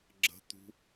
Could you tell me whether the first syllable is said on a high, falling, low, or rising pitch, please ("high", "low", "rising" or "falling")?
high